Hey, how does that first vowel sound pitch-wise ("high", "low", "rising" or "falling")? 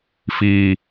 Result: low